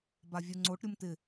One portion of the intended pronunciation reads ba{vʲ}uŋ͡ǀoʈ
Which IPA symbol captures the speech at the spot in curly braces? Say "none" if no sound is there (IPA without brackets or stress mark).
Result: vʲ